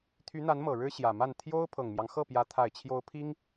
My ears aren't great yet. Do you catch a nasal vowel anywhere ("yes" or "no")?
no